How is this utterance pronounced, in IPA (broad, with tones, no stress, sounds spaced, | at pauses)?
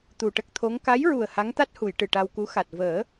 t̪ u˨˩ ʈ ə˦˥ k̚ t̪ʰ o˧˥ ŋ k a˧˥ j ɹ u˨˩ ə̯ h a˧˥ ŋ t̪ a˦˥ t̚ h u˨˩˨ j ʈ ɨ˨˩ ʈ a˧ w k u˧˥ x a˨˩ t̚ v əː˨˩˦